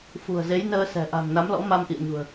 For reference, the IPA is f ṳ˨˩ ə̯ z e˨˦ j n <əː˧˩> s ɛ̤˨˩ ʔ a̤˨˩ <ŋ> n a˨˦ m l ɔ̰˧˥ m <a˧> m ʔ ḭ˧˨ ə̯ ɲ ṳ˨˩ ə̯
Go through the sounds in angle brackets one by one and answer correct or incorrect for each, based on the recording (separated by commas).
incorrect, correct, correct